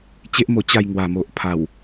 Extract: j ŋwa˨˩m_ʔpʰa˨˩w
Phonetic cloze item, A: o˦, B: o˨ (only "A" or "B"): B